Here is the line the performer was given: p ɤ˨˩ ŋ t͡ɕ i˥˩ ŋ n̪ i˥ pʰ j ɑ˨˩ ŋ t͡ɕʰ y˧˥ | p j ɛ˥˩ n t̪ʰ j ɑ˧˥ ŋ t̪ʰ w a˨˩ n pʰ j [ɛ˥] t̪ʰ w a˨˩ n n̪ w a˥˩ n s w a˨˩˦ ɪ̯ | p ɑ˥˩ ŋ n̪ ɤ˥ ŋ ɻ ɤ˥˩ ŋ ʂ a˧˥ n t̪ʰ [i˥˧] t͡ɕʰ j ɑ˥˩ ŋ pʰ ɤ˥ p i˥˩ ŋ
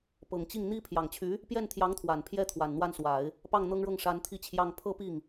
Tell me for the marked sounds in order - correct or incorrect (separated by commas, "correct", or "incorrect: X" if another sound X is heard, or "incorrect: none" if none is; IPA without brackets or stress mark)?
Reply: correct, correct